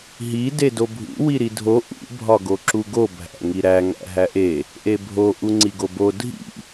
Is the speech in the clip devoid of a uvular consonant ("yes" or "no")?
yes